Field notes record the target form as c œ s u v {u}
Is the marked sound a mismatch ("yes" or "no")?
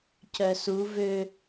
yes